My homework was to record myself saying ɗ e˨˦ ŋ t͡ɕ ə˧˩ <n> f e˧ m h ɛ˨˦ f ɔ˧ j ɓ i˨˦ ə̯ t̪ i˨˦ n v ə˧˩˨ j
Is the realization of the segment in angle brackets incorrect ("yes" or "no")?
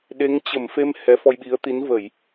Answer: yes